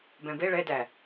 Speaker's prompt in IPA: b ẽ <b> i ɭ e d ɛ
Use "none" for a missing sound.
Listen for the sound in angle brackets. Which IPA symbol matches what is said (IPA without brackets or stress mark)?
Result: b